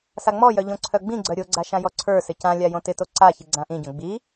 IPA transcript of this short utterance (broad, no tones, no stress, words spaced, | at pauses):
saŋ͡mɔjœ ʎõǀʰœɡ͡bĩɡ͡ǀœ ɾʲoɡ͡ǀa ʃãjɔǀʰə˞sɪ cãlʲa jõtɪto ǀaçi ɡ͡ǀãʔĩɟõ ɡ͡bi